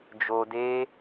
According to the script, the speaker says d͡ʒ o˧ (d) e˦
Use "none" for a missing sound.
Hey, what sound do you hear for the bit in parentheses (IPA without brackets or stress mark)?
d